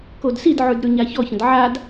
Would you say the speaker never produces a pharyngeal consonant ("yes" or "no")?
no